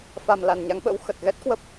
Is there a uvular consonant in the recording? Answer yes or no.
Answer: no